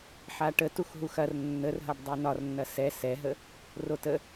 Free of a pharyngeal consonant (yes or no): no